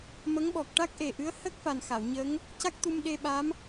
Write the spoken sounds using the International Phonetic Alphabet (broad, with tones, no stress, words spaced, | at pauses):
mə˧˥ŋɓɔ˨˩k̚ ʈa˦˥k̚ʔe˨˩ʔɨ˧˥ə̯ hə˦˥k̚fa˨˩n xa˨˩˨wɲə˧˥ŋ | ca˦˥k̚t̪u˧m ɗe˧ɓa˧˥m